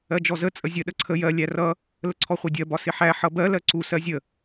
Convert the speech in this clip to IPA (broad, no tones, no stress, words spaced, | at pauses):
ɜd͡ʒɔzə t͡sʼəzʲə ɗəǀʰə jɜ lʲærʌ | ləǀʰɔχʷɛdʲɜ bɒsɪħæ ħʌbɜ lɜǀu sɜzʲə